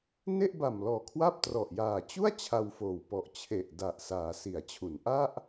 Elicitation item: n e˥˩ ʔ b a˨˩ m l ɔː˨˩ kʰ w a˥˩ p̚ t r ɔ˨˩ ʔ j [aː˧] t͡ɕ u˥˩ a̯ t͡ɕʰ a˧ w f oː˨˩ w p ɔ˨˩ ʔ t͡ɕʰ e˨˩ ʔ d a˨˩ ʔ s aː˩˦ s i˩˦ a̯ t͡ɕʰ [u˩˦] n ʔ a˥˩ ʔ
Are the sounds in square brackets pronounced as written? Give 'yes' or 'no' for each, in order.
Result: no, yes

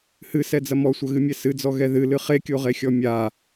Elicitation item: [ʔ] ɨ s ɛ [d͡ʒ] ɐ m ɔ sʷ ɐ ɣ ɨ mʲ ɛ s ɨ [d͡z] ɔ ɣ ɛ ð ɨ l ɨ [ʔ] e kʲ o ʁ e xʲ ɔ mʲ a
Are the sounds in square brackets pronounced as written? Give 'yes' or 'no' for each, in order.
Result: no, no, yes, no

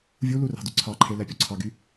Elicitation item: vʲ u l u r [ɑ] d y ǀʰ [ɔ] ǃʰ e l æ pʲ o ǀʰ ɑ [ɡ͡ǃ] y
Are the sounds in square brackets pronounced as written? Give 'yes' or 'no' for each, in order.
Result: no, no, no

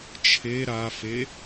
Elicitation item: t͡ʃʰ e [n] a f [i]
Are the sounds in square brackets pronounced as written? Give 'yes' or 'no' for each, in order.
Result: no, no

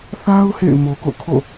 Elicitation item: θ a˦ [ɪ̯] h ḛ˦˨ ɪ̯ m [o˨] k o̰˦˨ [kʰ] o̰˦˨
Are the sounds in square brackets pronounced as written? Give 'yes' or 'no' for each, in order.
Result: no, yes, yes

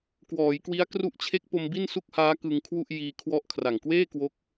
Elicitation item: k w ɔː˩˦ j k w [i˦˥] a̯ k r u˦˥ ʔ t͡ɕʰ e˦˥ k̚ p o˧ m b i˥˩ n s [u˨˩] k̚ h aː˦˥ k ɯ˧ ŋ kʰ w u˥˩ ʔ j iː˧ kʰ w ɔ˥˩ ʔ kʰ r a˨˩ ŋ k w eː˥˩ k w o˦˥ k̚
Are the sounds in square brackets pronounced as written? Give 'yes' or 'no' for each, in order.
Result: yes, no

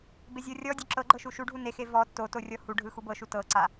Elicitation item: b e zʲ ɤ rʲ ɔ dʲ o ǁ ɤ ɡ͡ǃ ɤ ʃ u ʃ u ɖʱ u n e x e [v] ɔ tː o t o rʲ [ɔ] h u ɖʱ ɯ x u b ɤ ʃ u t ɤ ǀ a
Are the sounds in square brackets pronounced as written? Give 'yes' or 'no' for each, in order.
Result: yes, yes

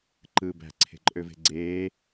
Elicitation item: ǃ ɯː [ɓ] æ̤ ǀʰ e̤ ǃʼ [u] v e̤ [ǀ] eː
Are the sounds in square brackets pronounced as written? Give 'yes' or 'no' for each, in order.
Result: no, no, no

